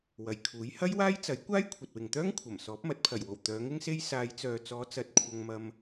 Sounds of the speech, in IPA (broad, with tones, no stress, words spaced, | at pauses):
wɐ˨˩jkʰuː˨˥j hɐ˥jwaː˥jt͡sɐ˨˥j kʷaː˥jkʷʰɐ˨t̚wɪ˨ŋt̪œː˥ŋ kʷʰɐ˨˩m sɔː˨˥p̚mɐ˨˥t̚pʰɐ˨˩jwo˨˩w t̪œː˨˧ŋɪ˥ŋse˥j saː˨˧jt͡sœː˨t͡sɔː˨˧t͡sɐ˨˥t̚ kʷʰɐ˧ŋmɐ˧m